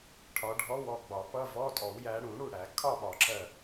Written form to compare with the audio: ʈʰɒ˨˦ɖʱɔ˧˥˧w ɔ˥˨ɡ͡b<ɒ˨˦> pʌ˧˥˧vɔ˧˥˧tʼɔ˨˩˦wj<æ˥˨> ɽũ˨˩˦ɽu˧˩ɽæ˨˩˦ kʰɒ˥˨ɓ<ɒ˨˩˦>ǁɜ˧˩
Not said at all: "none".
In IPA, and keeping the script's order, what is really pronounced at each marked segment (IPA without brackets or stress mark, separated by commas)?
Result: ɒ˨˩˦, æ˨˦, ɒ˨˩˦